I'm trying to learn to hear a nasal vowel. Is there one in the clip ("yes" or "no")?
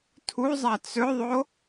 no